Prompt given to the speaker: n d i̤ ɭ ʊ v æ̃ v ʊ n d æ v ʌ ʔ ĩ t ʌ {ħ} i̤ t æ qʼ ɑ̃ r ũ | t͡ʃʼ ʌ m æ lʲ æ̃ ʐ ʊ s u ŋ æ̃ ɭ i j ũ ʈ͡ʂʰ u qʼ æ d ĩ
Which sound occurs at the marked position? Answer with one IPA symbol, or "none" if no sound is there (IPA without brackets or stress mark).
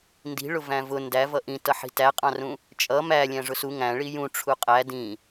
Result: ħ